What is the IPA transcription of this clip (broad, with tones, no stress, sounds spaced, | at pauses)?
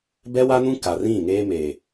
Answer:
b ɛ˦ w a˦ n ũ˦ k a˨ r ĩ˦˨ ŋ eː˦ m e˨